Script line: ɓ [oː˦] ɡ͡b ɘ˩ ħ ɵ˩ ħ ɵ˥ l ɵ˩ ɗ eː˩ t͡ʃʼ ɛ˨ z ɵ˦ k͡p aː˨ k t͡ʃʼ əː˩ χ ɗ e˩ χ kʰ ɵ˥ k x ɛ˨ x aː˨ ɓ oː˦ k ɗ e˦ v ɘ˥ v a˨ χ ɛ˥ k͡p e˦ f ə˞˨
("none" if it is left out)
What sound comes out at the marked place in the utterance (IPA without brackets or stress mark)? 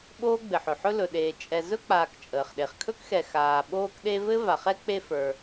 oː˥